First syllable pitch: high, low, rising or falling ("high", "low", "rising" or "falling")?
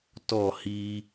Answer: falling